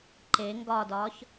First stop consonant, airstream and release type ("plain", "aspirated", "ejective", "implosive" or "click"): click